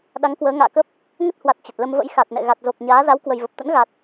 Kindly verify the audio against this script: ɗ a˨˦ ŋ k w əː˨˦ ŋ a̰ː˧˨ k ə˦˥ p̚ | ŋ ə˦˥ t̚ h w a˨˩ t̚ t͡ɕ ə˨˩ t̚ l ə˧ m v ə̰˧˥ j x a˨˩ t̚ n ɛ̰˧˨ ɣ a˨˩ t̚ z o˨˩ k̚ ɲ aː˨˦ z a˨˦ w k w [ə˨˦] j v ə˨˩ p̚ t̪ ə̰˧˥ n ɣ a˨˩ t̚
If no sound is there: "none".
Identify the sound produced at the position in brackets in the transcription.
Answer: ə˧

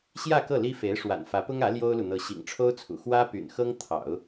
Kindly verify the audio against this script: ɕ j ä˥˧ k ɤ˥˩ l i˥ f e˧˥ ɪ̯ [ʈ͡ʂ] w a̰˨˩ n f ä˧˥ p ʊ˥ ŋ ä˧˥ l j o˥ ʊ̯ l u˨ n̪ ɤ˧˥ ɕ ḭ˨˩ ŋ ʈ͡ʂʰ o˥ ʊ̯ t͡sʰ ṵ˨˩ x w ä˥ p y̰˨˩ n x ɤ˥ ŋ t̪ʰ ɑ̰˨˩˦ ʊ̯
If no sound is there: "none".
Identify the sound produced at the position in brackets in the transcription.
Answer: ʂ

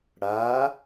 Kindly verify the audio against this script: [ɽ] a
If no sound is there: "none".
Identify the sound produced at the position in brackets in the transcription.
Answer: ɽ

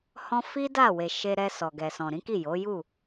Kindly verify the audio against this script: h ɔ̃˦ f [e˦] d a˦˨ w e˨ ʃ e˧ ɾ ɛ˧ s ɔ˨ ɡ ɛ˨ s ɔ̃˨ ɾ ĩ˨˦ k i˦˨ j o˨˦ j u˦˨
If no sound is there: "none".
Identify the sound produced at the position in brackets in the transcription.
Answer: i˦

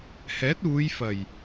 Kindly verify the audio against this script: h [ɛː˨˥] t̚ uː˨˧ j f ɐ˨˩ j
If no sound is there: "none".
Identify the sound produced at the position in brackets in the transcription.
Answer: ɛː˨˥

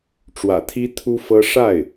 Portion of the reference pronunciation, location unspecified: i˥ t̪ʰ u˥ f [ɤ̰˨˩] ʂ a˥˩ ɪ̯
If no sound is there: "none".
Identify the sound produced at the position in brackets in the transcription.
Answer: ɤ˥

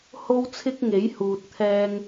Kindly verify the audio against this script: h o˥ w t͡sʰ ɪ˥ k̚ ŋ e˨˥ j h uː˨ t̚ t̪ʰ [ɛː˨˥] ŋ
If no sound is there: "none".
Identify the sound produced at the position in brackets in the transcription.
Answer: ɛː˧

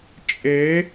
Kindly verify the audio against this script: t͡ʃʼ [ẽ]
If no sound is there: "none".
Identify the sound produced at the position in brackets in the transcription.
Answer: e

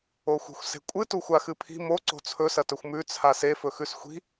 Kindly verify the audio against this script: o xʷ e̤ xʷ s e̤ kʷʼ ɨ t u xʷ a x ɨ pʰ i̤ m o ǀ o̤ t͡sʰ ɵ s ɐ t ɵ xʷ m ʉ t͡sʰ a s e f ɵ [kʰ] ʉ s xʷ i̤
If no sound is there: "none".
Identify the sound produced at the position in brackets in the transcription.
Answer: x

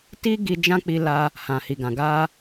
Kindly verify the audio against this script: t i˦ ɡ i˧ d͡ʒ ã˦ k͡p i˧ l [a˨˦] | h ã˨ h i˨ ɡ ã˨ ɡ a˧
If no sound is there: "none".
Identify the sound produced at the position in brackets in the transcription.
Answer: a˧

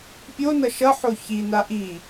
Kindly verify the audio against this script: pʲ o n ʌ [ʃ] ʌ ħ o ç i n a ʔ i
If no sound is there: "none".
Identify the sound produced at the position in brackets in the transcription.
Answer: ʃ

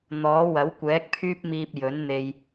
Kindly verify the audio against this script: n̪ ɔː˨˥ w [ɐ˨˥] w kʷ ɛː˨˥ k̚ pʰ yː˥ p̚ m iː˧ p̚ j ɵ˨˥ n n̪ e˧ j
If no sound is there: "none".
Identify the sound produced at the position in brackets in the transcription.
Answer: ɐ˨˥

